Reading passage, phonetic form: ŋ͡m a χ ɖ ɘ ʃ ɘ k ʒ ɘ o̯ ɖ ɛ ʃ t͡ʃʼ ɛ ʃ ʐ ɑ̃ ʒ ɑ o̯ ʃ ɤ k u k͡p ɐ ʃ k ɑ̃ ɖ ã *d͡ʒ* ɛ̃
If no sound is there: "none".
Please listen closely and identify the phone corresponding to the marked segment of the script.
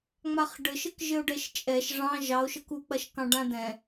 d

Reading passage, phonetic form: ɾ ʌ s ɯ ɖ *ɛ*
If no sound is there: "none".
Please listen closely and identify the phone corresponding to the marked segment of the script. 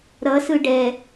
ɛ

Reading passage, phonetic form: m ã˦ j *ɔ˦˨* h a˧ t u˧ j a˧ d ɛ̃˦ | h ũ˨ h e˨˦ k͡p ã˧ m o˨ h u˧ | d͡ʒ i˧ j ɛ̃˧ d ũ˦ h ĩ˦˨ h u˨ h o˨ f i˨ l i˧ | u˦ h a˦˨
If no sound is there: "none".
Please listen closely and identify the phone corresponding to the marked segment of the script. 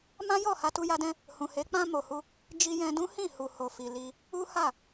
ɔ˦˨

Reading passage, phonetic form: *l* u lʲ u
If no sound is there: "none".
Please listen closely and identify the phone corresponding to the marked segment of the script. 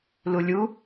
l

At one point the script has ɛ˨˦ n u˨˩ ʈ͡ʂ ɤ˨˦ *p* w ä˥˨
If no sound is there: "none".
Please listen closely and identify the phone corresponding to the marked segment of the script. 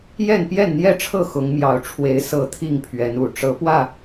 p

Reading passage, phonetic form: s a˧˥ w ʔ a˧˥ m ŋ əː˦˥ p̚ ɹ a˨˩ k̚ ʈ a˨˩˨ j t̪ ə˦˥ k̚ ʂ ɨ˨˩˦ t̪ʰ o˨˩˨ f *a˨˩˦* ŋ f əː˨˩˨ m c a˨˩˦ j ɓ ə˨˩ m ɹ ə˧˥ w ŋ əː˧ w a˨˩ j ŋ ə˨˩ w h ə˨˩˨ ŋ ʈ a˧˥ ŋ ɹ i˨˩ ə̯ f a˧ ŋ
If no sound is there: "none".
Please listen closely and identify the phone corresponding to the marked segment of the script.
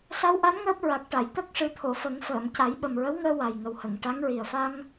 ə˨˩˦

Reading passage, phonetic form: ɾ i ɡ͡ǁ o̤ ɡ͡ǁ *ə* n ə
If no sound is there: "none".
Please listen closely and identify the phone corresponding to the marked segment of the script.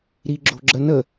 ə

